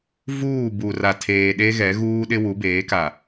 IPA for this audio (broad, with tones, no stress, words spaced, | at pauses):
vuː˦˨bu˨ra˨ tʰeː˨ɗe˦ɣɛ˨˦ ɣuː˦ɗɪ˦ wu˨˦beː˨˦ka˨